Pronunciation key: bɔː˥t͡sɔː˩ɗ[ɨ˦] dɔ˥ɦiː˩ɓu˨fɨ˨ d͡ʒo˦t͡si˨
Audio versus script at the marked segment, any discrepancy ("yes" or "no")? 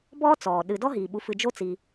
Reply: yes